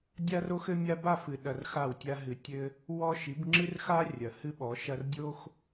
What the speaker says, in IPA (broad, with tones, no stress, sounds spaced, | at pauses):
dʲ a˦ r o˦ x ɘ˦ mʲ a˦ b a˦˨ f ɨ˨ ɗ ɐ˧ r x a˦˨ w tʲ a˦ ɦ ɨ˧ tʲ ɘ˦ | w ɔ˦ ʃ i˨˦ b ŋ͡ǁ ɨ˦ r x a˦ rʲ ɐ˨ h ɨ˦ ɓ ɔ˨˦ ʃ ɐ˦ r dʲ o˦ x